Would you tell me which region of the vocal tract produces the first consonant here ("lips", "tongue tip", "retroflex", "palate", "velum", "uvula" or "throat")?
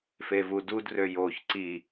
lips